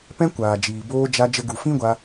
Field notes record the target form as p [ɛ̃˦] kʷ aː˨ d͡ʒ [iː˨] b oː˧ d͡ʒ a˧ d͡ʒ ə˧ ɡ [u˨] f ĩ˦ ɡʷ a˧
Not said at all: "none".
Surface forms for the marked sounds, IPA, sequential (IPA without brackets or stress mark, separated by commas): ɛ̃˦, iː˨, u˨